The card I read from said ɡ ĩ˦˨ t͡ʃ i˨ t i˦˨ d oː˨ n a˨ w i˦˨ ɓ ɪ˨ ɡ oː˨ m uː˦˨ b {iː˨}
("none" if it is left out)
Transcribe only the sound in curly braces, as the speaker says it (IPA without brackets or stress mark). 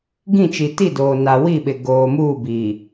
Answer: iː˨